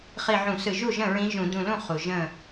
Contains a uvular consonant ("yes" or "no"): yes